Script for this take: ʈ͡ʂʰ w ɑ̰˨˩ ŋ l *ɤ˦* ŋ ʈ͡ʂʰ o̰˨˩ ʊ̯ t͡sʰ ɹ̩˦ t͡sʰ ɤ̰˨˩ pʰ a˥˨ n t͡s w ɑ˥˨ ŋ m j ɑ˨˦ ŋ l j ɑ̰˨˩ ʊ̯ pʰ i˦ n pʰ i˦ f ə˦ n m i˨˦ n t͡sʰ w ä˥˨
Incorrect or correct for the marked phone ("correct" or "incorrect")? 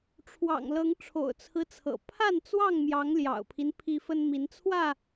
incorrect